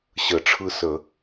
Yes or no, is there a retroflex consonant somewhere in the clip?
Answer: yes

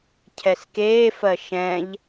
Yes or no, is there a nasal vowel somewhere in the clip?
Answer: yes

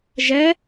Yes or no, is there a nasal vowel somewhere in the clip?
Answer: no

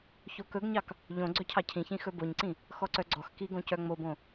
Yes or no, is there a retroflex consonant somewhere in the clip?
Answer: no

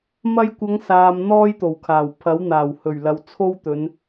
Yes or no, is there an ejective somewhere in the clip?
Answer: no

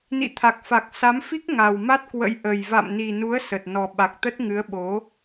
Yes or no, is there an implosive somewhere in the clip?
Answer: yes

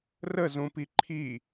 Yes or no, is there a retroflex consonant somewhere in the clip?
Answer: no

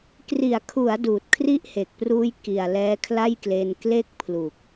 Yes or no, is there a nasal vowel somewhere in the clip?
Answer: no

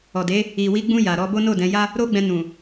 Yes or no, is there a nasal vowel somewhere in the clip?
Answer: yes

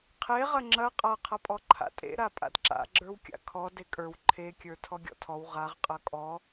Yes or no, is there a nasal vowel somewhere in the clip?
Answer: no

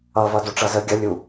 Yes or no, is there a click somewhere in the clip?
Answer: no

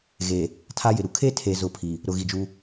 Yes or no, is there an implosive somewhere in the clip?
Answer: no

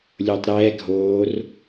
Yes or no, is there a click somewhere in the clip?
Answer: no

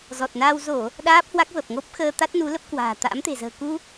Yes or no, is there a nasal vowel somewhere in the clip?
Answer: no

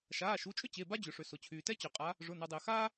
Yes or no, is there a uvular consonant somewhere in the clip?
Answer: yes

